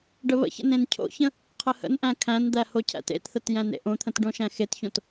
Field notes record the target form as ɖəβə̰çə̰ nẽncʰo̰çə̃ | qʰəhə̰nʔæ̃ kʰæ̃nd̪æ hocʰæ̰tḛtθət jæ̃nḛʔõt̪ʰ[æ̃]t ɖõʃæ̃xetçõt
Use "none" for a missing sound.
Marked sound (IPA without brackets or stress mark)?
ə̃